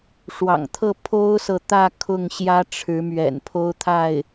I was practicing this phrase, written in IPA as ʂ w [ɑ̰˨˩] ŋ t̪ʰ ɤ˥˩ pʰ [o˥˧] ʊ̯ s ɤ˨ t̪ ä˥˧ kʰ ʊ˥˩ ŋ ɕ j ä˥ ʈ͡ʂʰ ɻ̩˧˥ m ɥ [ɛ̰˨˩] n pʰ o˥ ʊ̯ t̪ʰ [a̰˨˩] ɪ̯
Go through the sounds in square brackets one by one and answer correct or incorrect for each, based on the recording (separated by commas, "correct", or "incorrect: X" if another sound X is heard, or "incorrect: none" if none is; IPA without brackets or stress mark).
correct, incorrect: o˥, correct, incorrect: a˥˩